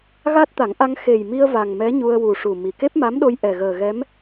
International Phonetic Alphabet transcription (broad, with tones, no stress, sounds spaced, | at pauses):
ɣ a˦˥ t̚ t̪ a˨˩˦ ŋ ʔ a˧ ŋ x e˨˩ j m i˧ ə̯ v a˨˩ ŋ m ɛ˧˥ ɲ u˧ ə̯ w u˨˩ ʂ u˨˩ m i˨˩ k e˦˥ p̚ m a˧˥ m ɗ o˧ j ʔ ɛ˨˩ ɣ əː˨˩ ɣ ɛ˧˥ m